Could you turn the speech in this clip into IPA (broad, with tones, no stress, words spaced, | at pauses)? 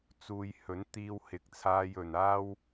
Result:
t͡suː˧j hɵ˨˥nt̪iː˧w hɪ˧k̚t͡sʰaː˥j ɵ˨naː˥w